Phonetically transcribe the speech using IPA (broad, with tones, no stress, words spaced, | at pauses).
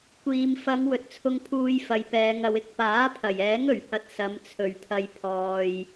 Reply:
kʷiː˨m fɐ˨˧ŋ wɵ˨t̚t͡sʰʊ˧ŋpʰuː˧j fɐ˨˧jpɛː˨˧ŋɐ˨˧w ɪ˧k̚ paː˨˥pʰɐ˨˩jɛː˨˥ŋ ɵ˨˩ɥhɐ˧t̚sɐ˨˧m t͡sʰɵ˨˩ɥpʰɐ˨j pʰɔː˨j